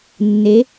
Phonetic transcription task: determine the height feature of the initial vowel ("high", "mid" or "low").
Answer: mid